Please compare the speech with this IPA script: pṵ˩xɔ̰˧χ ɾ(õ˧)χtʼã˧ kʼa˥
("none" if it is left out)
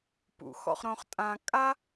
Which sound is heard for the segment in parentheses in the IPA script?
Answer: õ˧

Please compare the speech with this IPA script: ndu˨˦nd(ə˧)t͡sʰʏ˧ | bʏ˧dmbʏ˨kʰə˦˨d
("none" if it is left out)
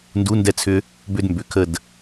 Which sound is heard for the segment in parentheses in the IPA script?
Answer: ɛ˧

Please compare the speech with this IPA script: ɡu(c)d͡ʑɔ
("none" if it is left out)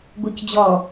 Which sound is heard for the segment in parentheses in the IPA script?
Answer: c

